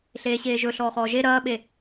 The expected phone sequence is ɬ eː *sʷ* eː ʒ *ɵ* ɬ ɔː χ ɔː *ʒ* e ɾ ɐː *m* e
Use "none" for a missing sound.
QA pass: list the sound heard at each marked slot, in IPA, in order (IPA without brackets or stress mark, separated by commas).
ɕ, ɵ, ʒ, ɓ